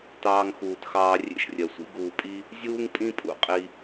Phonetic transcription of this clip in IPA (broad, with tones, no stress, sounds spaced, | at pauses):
t ɑː˧ ŋ x uː˨ t x ɑː˧ rʲ ḛ˦ ʃ rʲ ɜ˨ sʷ ḭ˦ ɡ uː˨ pʼ i˧ | zʲ uː˦ ŋ pʼ ĩ˦ pʼ ṵ˦˨ qʼ i˧